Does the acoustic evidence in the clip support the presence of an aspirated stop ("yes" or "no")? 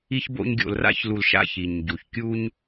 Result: no